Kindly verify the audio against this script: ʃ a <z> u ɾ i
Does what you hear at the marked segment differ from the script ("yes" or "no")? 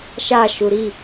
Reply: yes